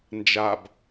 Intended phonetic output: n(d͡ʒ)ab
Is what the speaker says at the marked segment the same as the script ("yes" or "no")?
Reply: yes